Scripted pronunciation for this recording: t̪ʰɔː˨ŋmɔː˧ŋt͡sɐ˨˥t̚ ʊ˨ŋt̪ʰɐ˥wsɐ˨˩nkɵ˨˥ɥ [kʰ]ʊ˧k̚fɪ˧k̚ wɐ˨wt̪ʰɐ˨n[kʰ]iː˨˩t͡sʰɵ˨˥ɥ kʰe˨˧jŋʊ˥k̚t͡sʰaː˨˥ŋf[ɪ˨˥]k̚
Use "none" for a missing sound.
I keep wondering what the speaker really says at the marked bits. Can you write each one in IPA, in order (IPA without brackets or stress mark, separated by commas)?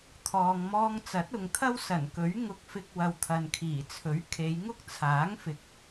ŋ, kʰ, ɪ˨˥